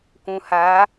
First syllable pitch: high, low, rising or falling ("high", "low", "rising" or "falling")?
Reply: low